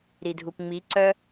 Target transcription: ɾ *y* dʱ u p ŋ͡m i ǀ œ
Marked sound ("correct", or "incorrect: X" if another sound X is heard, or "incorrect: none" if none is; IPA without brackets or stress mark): incorrect: i